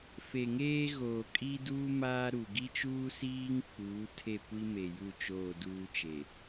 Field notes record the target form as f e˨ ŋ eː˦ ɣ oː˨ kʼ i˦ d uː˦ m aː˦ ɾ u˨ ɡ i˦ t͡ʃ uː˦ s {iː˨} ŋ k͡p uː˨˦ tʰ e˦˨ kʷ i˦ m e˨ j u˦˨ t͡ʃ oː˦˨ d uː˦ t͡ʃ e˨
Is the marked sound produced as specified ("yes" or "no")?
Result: no